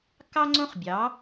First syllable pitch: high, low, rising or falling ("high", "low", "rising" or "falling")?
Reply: high